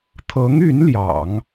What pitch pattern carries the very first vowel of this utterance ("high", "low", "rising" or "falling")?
rising